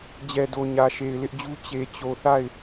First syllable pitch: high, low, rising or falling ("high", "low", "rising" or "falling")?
low